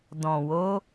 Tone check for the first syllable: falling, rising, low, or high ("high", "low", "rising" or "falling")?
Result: low